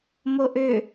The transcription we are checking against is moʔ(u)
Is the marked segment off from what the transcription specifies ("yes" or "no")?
yes